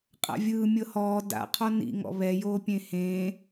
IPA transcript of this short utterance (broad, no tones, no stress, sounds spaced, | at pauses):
qʼ a̰ vʲ ɯː mʲ ɤ h ɔː d a̰ qʰ ɔ n ḭ ŋ ɔ̰ β ɛ j oː pʲ ẽ h ẽː